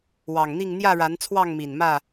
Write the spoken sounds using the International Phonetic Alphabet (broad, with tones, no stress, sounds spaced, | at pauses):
w ɑ˨˩ ŋ n̪ i˥˨ ŋ n̪ j ä˥˨ ɻ a˨˦ n t͡sʰ w ɑ˥˨ ŋ m i˨˩ n m ä˥˨